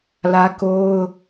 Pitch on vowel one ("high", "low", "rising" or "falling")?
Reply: high